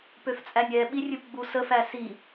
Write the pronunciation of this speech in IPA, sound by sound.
p ø f t͡sʼ æ nʲ ɛ ɓ i rʲ ɨ p ɡ͡b u s ə f æ s i

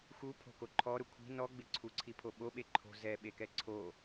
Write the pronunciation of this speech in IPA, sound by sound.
x u pʰ o̤ k o ǃʰ ɔ ɾ ʊ kʷʰ i̤ n ɔ ɡ͡b ɪ ǀʰ u ǀʰ i pʰ o ɓ o ɓ e ǃʰ o̤ z ɛ ɓ e k ɛ ǀʰ o

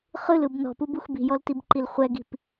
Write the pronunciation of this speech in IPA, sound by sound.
χ ɯ l ɯ b n ɔ̤ p u b u x b i̤ j ɔ l t i b ǃ i l χʷ ɛ ɡ i̤ p

